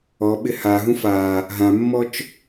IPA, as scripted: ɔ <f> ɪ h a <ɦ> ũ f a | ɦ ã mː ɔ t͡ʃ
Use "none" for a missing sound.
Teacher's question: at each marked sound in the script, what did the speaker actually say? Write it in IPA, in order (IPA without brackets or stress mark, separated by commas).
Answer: ɓ, ɦ